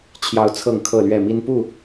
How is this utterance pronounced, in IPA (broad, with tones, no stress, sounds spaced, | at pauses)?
t͡ɕʰ j ɑ˦ ʊ̯ t͡sʰ ɤ˥˨ ŋ kʰ ɤ˥˨ l ɥ ɛ˥˨ m i˦ n p u˥˨